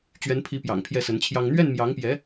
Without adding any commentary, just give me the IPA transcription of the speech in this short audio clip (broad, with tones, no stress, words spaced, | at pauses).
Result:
t͡ɕɥɛ˧˥npʰi˧˥pjɑ̰˨˩ŋ pʰjɛ˥˩sə˧˥nt͡ɕʰjɑ˥ŋ n̪ɥɛ˥˩nmjɑ˧˥ŋpjɛ˧˥